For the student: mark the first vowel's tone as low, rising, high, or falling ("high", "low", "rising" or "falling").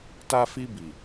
high